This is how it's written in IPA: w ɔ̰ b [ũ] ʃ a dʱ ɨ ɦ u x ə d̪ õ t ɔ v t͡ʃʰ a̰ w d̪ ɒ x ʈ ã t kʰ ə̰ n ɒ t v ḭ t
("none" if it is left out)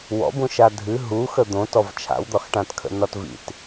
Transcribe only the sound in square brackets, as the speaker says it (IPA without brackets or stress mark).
ũ